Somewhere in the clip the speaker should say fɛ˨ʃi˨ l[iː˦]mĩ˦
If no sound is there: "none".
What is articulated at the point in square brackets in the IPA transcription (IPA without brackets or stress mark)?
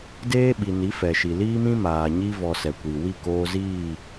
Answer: iː˦